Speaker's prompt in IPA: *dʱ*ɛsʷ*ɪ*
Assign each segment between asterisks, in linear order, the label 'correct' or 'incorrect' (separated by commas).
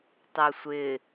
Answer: incorrect, correct